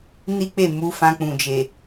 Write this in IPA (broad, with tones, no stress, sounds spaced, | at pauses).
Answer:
n i˦ k͡p e˦˨ m u˨˦ f ã˧ k͡p ũ˨ d͡ʒ e˨